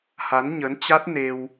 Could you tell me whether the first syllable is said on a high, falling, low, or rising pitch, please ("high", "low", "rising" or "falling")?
rising